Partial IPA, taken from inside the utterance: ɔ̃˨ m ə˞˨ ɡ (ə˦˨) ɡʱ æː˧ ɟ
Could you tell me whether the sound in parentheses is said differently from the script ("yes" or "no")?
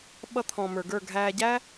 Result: yes